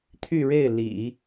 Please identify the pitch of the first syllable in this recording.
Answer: falling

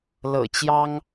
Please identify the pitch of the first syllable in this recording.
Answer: low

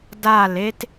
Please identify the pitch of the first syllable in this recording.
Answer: falling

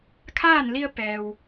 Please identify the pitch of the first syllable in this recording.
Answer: falling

